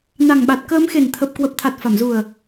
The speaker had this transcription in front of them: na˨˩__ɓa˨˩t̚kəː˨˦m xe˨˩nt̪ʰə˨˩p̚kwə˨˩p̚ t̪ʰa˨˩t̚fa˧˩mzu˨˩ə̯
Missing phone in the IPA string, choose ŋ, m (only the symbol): ŋ